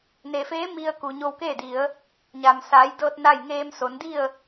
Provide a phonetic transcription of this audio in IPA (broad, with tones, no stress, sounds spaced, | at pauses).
n e˩ f eː˧˥ m i˧ ə̯ k u˩ ɲ o˧ w k eː˥˨ d i˩˧ ə̯ | ɲ a˩ m s aː˩˧ j d ɤː˧ t̚ n a˥˨ j ŋ eː˧ m s o˩˧ n d i˥˨ ə̯